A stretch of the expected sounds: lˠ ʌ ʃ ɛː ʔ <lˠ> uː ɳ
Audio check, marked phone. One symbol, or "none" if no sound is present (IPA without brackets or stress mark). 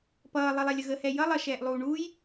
lˠ